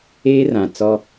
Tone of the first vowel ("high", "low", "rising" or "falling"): high